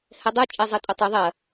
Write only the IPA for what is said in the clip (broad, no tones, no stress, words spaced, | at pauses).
hɛdˤu t͡ʃʼɛzˤetʼutˤɨ ðˤɐ